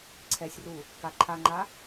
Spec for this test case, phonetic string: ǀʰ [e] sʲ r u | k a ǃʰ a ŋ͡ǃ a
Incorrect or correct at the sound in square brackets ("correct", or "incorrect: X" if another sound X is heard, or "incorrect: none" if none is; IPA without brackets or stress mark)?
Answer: incorrect: ɛ